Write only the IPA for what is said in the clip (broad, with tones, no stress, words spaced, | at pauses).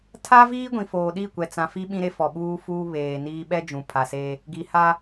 tʰa˦viː˦ ɡʷĩ˨foː˨ɗi˦˨kʷɛ˨ t͡sã˨fi˦ɓĩ˦ ɾe˦fɔ˨ɓuː˦fuː˦ βeː˨niː˦ ɓɛ˦ d͡ʒũ˨pʰa˨se˦ | ɡi˨ha˦